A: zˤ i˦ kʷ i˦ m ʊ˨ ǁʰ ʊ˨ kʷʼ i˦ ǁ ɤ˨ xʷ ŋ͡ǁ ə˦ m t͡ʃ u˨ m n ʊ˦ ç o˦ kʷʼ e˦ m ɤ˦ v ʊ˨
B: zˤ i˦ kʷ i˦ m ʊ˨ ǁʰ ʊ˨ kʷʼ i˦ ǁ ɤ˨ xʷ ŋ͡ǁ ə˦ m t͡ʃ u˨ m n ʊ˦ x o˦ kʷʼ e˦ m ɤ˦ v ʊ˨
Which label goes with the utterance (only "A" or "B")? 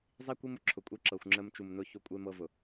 A